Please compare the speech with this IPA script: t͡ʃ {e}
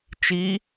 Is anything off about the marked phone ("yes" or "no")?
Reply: yes